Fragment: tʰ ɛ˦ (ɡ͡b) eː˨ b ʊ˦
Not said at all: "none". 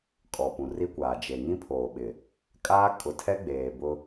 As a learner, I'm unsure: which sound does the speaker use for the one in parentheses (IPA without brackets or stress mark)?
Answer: ɡ͡b